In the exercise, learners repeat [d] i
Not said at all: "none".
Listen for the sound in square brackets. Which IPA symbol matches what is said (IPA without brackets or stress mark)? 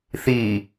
θ